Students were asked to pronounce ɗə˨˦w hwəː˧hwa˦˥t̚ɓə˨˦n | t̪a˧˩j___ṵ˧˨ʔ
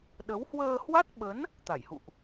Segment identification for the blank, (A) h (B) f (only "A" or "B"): A